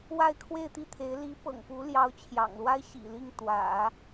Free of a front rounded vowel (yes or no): yes